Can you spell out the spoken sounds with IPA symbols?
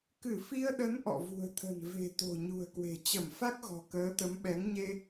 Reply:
k ɨ˧˩ f i˧ ə̯ ɗ ə˨˦ n ʔ ɔ̰˧˨ v ṳ˨˩ ə̯ t̪ʰ ə̤˨˩ n v e̤˨˩ t̪ o̤˨˩ ɲ ṳ˨˩ ə̯ k w e̤˨˩ t͡ɕ ə˧˩ m f a˦˥ k̚ ɣ ɔ̤˨˩ k əː˨˦ t̪ ə˨˦ m ɓ ɛ˨˦ ŋ ɲ e˧

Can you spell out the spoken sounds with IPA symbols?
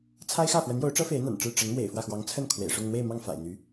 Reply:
t͡sʰ a˥ ɪ̯ x ä˥˩ f w ə˧˥ n j o˧˥ ʊ̯ ʈ͡ʂ ɤ˥ f e˧˥ ɪ̯ n̪ a̰˨˩ n ʈ͡ʂ ɻ̩˥˩ ʈ͡ʂ ə˧˥ n m w ḛ˨˩ ɪ̯ f w ä˥˩ x w ɑ˧˥ ŋ t͡sʰ ə˥˩ n kʰ w ḛ˨˩ ɪ̯ ʂ ʊ˥˧ ŋ n̪ w e˥˧ ɪ̯ m ɑ˥˩ ŋ f a̰˨˩ ɪ̯ n̪ y˧˥

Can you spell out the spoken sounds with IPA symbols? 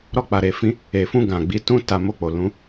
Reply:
ɾ ɔ˧ k͡p a˨ ɾ e˨ f ĩ˨˦ | e˨ f ũ˧ ɡ ã˨ ɡ͡b i˨˦ t ũ˦ t a˧ m o˧ k͡p o˨ l ũ˨˦

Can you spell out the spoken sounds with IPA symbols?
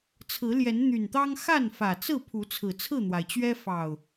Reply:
t͡sʰ ɹ̩˨˦ l j ɛ˨˦ n n̪ y˨˩ n t̪ ɑ˦ ŋ x a˥˨ n f ä˨˩ t͡s ɹ̩˥˨ pʰ u˨˦ t͡sʰ ɹ̩˨˩ t͡sʰ ɹ̩˥˨ n̪ w a˩ ɪ̯ t͡ɕ ɥ ɛ˦ f ɑ˨˩ ʊ̯

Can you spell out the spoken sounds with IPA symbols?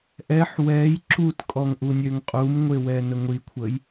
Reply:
ʔ ɛ ħ w ɛ j ǁ u t kʼ ɔ ŋ ʔ u nʲ ø ŋ qʼ u m ŋʷ e w ɛ n ə ŋʷ i kʷʰ ə j

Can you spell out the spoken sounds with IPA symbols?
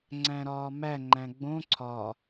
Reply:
ŋ͡ǀ æ̃ ɾ ɒː m æ ŋ͡ǃ æ̃ ɡ͡b õ ǀʰ ɒ

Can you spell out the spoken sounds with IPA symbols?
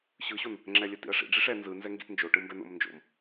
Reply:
ɕ ɯ ɕ o n | ŋ͡ǁ ɛ lʲ ə t ḭ ɐ̯ ʂ ḭ ɖ͡ʐ i ʂ ɛ n z ɯ n z ɛ ŋ ɡ ḭ t n d͡ʒ o ʈ ɯ m b ɛ n o̰ m n d͡ʒ o̰ m

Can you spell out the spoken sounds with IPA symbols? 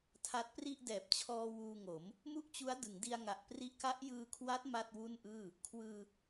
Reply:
tʰ a˦˥ t̚ p r i˥˩ ʔ d ɛː˨˩ p̚ t͡ɕʰ ɔː˧ w uː˧ ŋ o˩˦ m | m u˥˩ ʔ t͡ɕ u˦˥ a̯ d ɯ˩˦ ŋ d i˧ a̯ ŋ a˨˩ ʔ p r i˦˥ ʔ k a˦˥ ʔ j ɯː˧ kʰ w a˦˥ t̚ m a˥˩ t̚ w u˥˩ n ʔ ɯː˥˩ | kʰ w ɯː˧

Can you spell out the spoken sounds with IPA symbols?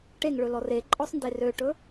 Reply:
ʈ e ŋ ɭ ɵ l ɔ r e ǃʼ ɔ sˤ n d e r ø ʈ ɵ

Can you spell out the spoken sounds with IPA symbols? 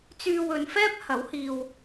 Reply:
t͡s yː˧ w ɵ˨˧ n f ɛː˥ p̚ h ɐ˨˥ w h iː˧ w

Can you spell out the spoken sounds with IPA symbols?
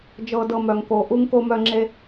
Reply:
d͡ʒ ɤ˨ d ɤ˨ m œ˩ ŋ k o˩ ʔ u˥ ŋ k o˦ m œ˦ ŋ͡ǁ e˦

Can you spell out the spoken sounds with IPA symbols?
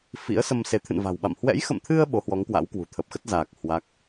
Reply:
f ḭ˧˥ ə̯ s ə˧ m s e˨˦ t̪ʰ ɨ̰˧˨ n v a̤˨˩ w ɓ a̰˧˨ m h w ɛ̰˧˥ j x ə̰˧˨ m t̪ʰ ɨ˧ ə̯ ɓ o˨˦ h w ɔ˨˦ ŋ k w a̰˧˥ w k w ṳ˨˩ t̪ʰ ə˨˩ p̚ x ə˦˥ t̚ z aː˨˩ k̚ h w a˦˥ k̚

